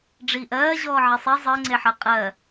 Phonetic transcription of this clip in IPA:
ɖ͡ʐ iː ʔ ɜː ʑ ɔː ʕ e sˤ i zˤ əː ŋ͡ǀ e ħ ɜ qʼ ɜ

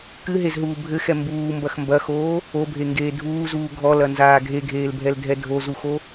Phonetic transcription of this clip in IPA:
k ɨ ɦ e z ɦ uː bʱ ɘ x ɛ m b uː m b ɐ x m b ɐ x oː | o bʱ e ŋ ɡ eː dʱ uː z uː ɡʱ ɔ l ɐ n z aː ɡʱ e ɡʱ eː l bʱ ɛ l dʱ ɛ dʱ o z u x o

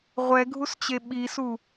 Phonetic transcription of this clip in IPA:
ʁʷ ɛ ɡʱ u s t͡ɕ e ɓ i s u

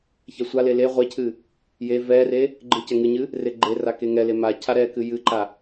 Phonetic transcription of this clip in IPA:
ç ɛ sʷ a l e l e ʁʷ e cʰ ɨ | j e v ɛ r e | ɡ͡ǃ ɨ c ɛ ŋ ɨ ɲ ɨ | r e ɡ͡ǃ e r a k e ŋ ɛ l e m a cʰ a ɾ ɛ k ɨ j ɨ ǃ a

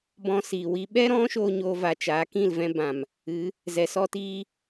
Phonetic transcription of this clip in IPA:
b ɔ̃˧ s iː˨ w i˧ ɓ ɛ˦ ɾ ɔ̃˦ ʃ oː˦ ɲ oː˧ v a˨ t͡ʃ aː˨˦ k ĩ˦˨ l v ɛ̃˦ b ã˨ m | ɨ˨˦ | z ɛ˨ s ɔ˦ t iː˦

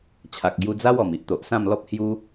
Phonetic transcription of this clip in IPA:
t͡ɕʰ a˨ k̚ ɡ j u˧ d͡z a˦ w ɔ˨˩ m i˦ ʔ t̪ o˨ ʔ s ã˥˧ m l ɔ˦ p̚ h j u˧

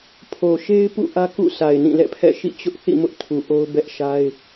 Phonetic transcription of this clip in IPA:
pʰ o˨ ʃ e˦ ɪ̯ p ṵ˦˨ ʔ ä˦ k ṵ˦˨ s a˨ ɪ̯ n ĩ˦˨ l ɛ̰˦˨ pʰ ɛ̰˦˨ ʃ ḭ˦˨ t͡ɕ ʊ˦ ʔ θ ḭ˦˨ m ʊ˦ ʔ tʰ u˨ ʔ o˦ ʊ̯ b ɛ˦ ʔ ʃ a˦ ɪ̯

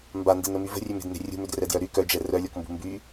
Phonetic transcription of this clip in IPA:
m b a n d e n ə m y v ə̤ rʲ ø m e̤ d n e̤ rʲ ṳ m ø d r ɛ d j œ ɾ y k œ d͡ʒ ɛ r œ lʲ ɔ k m b ṳ m b y

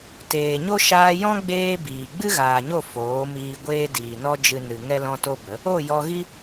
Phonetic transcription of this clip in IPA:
t eː˨ ɲ o˦ ʃ aː˧ j ɔ̃˦ ɡ͡b eː˦ b iː˨ ɡ͡b ɨ˦ ɣ aː˨ ɲ o˦˨ f oː˨˦ m iː˧ ɡʷ eː˦ d iː˨ n ɔ˦ d͡ʒ ɨ˧ n ɨ˨ ŋ ɛ˦ l ɔ̃˦ t o˦ b ə˨˦ | o˦˨ j ɔ˧ ɣ i˦

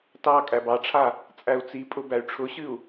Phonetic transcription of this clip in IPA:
t ɑ kʼ æ b ɑ ʈ͡ʂʰ a | t͡sʼ æ u̯ t͡s i pʼ ʊ b æ y̯ ʈ͡ʂʰ ʊ ɕ ɨ u̯

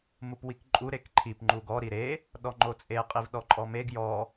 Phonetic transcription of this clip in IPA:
m u p w i k ǃʼ u ɾ e k ǃʰ i p ŋ͡ǃ u ɡ ɔ ɾ i ɾ e | ɗ ɔ ŋ͡ǃ o t͡sʼ e qʼ i v ɗ ɔ ǃʼ ɔ m e ɡ j ɔ

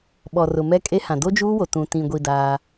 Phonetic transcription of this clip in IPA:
ɓ ɔ˨ r ʊ˨ m ɛ˦ kʼ e˦ h ã˨ d o˦ d͡ʒ uː˦ w o˨ t ũ˨ t ĩ˨ ɡʷ i˨ d aː˦

